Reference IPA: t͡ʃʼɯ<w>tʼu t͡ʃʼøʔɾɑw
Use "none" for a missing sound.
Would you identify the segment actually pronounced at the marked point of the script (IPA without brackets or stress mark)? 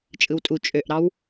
w